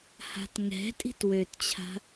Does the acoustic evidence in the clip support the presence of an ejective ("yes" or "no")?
yes